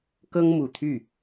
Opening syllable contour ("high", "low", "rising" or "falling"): high